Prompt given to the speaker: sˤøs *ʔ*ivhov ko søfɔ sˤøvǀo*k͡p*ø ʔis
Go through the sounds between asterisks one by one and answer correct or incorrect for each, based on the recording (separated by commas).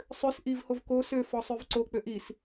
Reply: correct, correct